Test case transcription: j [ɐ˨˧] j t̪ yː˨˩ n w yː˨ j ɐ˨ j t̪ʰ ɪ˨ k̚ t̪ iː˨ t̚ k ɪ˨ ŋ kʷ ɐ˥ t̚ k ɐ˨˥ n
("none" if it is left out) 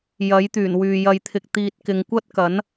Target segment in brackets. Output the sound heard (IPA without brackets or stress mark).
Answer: ɐ˨˥